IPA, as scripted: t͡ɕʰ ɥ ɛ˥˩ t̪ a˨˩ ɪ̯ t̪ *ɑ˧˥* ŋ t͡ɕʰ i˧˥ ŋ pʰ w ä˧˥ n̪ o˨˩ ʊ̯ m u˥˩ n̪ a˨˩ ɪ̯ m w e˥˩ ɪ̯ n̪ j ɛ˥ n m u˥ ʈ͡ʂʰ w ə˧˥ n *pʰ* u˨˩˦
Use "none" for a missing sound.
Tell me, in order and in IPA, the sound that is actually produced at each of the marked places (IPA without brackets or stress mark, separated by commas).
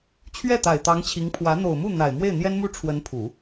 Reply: ɑ˧˥, pʰ